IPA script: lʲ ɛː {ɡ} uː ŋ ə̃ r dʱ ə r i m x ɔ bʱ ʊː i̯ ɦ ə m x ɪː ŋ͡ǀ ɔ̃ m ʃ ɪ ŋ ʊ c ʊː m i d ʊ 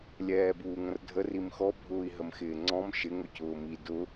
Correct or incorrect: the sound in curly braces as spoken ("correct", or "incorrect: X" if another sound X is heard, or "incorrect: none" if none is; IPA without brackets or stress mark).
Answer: incorrect: b